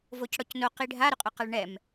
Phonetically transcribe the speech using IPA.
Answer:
v o c ɽ ɔ c n o q i ɖʱ a ɾ ʊ qʼ ʊ q a ɭ ɳ ɛ m

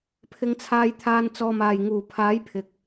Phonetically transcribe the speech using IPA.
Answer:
pʰ ɪ˧ ŋ t͡sʰ aː˧ j t̪ʰ aː˧ n t͡s ɔː˨ m aː˨˩ j ŋ uː˨˩ pʰ aː˨˥ j pʰ ɪ˨ k̚

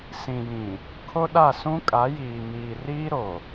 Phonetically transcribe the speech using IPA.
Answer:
s ĩ˨ j ĩ˨ | kʰ o˦ ɗ a˦˨ s ũ˦ kʼ a˨˦ j iː˨ m iː˨ r iː˦ ɾ o˨

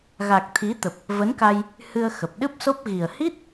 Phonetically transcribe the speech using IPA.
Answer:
ɣ a˨˩ k̚ t̪ʰ i˨˦ t̪ ə˨˩ p̚ | v ə˨˦ n k a˧ j | h ɨ˧ ə̯ x ə˨˩ p̚ ɗ ɨ˦˥ p̚ s o˦˥ p̚ ɣ i˨˩ ə̯ h i˦˥ t̚

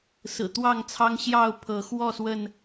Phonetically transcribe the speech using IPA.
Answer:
s ɹ̩˨˩ t̪ w ɑ˥˨ ŋ t͡sʰ ɑ˦ ŋ ɕ j ɑ˥˨ ʊ̯ pʰ ɤ˨˦ x w ɔ˥˨ s w ə˥˨ n

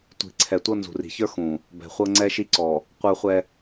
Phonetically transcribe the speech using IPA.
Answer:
tʷ i̤˨ ǀʰ ɛ˨ tʷ ɤ˦ n z ṳ˨ r i̤˨ ç ə˞˦ x ũ˨ | b ɛ̤˨ χʷ ɤ˦ ŋ͡ǀ ɛ˦ ʃ i˦ ǀ ɔ˨ | qʷ ə˞˦ χʷ ɛ˦

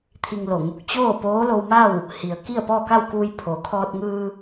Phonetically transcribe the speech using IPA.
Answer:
t̪ʰ i˧ ŋ l o˧˩ ŋ u˧˩ k̚ t͡ɕ oː˥˨ p oː˧˥ l o˧ w m a˥˨ w | h i˩ ə̯ k i˥˨ ə̯ p ɔː˥˨ k a˥˨ w k uː˧ j pʰ o˩ kʰ ɔː˧ t̚ ŋ ɯː˧

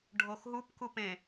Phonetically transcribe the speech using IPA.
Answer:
ɖʱ o x ɦ u p k u p ẽ

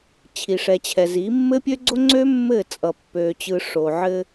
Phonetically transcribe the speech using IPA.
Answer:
t͡ɕʰ i˨ ʂ ɛ˨ t͡ɕʰ ɛ˨ z i˨˦ mː ɘ˦ pʲ ø˦ ɡ͡ǀ o˦ ŋ͡ǀ ø˦ mː ɘ˦˨ t͡sʼ ʌ˨ pː ø˨ t͡ɕ ɯ˨ ʂ o˨ ʕ ɘ˦

